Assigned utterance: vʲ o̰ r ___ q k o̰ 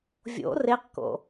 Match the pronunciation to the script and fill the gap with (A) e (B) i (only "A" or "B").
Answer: A